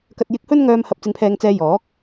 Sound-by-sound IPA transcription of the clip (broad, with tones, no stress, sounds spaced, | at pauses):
k ɐ˧ t̚ j ɪ˧ k̚ h ɵ˥ n ŋ œː˧ m h ɐ˧ p̚ t͡s ɪ˧ ŋ pʰ ɛː˧ ŋ t͡s ɛː˧ j ɔː˨˥ k̚